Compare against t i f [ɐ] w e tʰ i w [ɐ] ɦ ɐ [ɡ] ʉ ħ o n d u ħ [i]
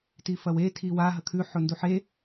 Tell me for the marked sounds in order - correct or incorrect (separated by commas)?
correct, incorrect, incorrect, incorrect